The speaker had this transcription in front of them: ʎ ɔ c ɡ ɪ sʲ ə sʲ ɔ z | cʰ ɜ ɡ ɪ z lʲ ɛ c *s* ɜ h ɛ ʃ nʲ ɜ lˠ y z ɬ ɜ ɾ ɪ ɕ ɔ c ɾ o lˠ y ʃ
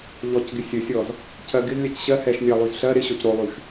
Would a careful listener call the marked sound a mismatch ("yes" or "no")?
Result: yes